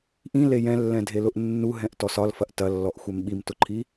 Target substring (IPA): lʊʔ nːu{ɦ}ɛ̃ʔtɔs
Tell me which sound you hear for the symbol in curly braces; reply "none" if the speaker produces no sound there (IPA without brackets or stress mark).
ɦ